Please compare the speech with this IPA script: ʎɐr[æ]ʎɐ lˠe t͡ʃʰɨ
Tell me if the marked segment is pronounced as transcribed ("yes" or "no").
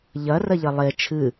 no